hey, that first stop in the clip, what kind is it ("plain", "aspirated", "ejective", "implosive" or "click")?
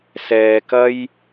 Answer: plain